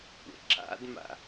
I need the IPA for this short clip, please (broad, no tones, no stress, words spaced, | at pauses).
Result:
kʷḛǁa̰dma̰